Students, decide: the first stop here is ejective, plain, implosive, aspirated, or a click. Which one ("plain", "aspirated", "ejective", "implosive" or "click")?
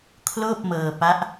aspirated